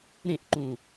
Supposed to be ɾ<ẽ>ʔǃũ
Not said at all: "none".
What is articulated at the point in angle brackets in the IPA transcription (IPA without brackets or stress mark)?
ẽ